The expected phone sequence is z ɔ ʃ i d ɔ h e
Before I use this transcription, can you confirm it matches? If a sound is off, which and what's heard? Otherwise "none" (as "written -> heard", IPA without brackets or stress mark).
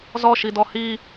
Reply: e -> i